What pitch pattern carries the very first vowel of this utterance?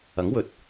rising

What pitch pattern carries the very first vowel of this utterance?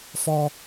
high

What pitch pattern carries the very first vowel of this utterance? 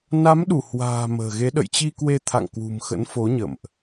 rising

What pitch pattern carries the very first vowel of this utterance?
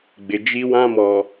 low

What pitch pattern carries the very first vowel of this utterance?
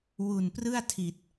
low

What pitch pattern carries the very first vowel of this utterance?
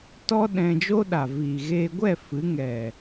high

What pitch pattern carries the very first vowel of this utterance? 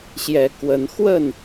rising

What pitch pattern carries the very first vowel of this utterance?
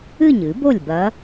falling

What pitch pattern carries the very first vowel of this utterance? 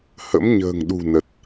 rising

